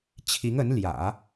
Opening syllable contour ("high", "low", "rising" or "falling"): rising